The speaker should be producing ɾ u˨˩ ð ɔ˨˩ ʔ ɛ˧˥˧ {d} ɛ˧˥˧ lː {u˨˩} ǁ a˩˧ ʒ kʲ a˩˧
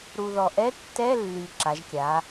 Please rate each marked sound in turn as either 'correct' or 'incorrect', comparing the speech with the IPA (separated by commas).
incorrect, incorrect